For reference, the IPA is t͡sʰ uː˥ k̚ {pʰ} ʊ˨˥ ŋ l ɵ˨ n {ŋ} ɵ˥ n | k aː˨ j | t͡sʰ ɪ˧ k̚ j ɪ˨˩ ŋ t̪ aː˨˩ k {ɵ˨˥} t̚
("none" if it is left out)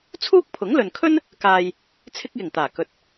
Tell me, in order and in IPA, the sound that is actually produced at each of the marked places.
pʰ, kʰ, ɵ˨

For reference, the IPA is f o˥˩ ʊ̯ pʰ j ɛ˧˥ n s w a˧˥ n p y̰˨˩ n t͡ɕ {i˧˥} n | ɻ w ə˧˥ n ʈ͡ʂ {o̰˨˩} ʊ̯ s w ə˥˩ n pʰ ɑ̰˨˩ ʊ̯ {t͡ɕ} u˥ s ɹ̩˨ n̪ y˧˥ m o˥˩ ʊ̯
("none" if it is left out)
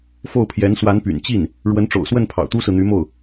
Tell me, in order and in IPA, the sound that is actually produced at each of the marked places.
i˥˩, o̰˨˩, t̪

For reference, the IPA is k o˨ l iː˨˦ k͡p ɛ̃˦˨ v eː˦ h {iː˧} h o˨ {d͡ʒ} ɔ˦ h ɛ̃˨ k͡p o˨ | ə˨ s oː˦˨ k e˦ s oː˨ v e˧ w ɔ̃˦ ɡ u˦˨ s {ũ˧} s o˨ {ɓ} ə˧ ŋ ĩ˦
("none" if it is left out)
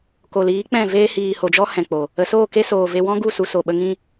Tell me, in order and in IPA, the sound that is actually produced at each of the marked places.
iː˨, d͡ʒ, u˧, ɓ

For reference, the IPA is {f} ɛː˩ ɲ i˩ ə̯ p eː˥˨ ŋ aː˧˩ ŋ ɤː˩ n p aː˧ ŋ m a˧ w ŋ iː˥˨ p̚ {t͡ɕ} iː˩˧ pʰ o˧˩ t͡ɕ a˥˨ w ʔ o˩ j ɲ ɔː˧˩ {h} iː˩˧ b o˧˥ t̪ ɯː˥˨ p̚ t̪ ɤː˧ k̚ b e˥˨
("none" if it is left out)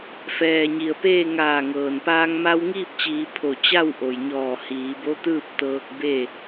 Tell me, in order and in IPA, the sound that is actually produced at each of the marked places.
f, t͡ɕ, h

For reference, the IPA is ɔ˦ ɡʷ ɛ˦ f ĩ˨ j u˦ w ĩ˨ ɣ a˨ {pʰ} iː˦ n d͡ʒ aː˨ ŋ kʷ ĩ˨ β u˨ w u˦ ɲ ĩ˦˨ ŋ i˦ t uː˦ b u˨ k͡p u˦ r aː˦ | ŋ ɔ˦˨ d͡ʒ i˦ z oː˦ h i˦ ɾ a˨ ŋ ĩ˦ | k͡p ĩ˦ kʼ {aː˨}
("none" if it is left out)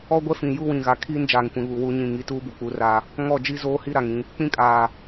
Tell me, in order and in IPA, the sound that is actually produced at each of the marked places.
kʰ, aː˨

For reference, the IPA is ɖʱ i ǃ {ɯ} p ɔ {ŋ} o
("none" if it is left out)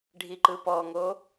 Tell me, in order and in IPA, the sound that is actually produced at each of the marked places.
ɯ, ŋ

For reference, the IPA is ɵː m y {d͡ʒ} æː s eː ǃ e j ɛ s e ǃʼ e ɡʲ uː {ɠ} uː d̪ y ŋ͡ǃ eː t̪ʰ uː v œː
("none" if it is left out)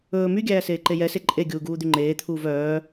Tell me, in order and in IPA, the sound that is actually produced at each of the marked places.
ɡʲ, ɡ

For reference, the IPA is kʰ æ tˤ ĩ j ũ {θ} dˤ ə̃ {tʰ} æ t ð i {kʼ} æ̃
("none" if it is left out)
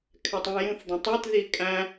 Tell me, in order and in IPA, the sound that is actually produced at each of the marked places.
θ, tˤ, kʼ

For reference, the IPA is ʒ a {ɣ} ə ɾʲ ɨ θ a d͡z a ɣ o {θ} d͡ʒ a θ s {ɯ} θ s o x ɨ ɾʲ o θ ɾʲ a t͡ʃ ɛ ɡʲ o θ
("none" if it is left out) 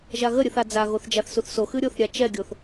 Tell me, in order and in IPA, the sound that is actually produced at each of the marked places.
ɣ, θ, u

